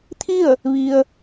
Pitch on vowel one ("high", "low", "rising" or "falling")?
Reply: falling